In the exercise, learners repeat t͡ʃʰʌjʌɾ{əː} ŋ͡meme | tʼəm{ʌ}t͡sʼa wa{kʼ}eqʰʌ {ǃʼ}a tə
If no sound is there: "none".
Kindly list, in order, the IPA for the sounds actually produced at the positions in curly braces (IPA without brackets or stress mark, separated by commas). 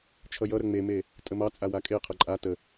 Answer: ə, ɑ, kʼ, ǃʼ